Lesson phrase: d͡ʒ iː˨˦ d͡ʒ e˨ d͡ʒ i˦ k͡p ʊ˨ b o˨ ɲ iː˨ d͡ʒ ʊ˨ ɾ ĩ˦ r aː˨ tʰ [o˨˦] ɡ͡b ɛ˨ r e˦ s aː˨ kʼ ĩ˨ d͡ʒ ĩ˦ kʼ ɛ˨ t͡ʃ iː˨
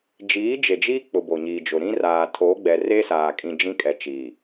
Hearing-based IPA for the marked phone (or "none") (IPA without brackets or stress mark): o˨˦